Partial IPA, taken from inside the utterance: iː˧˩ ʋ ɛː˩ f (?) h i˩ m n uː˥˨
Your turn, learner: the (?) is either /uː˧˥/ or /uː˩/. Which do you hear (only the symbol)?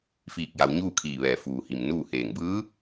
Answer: uː˩